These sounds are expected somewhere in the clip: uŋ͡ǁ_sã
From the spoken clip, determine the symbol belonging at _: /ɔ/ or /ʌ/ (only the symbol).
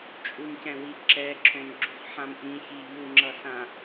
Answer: ʌ